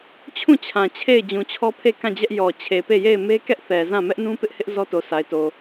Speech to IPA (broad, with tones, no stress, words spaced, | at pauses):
t͡ɕʰũ˦˨t͡ɕʰã˨ t͡ɕʰe˦˨ɪ̯ d͡ʑũ˨t͡ɕʰɔ˦ pʰe˦˨ kã˦˨d͡ʑɛ˦ʔ jɔ˨ t͡ɕʰe˨pe˦˨je˦˨ɪ̯ me˦kɛ˦ʔθɛ˨zã˦˨ mɛ˦ʔnũ˦pɪ˦ʔhɪ˦ʔ zɔ˦to˨sa˨ɪ̯to˨